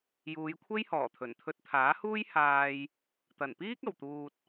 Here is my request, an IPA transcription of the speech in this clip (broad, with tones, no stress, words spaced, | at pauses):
juː˨˧j kʷʰe˥jhɔː˨˩t̪ʰɵ˨˩n t̪ʰɵ˧t̚t̪ʰaː˨˥huː˥j haː˧j | t̪ɐ˨˩npiː˥k̚ ɐ˨˩wt̪uː˨t̚